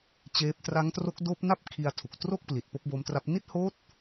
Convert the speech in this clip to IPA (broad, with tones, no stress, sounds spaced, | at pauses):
t͡ɕ eː˦˥ p̚ t r a˦˥ ŋ t r o˦˥ k̚ d oː˦˥ p̚ n a˥˩ p̚ kʰ i˧ a̯ tʰ u˨˩ k̚ t r o˥˩ k̚ p l i˨˩ t̚ p o˦˥ k̚ b oː˦˥ m t r a˦˥ p̚ n i˦˥ t̚ h oː˦˥ t̚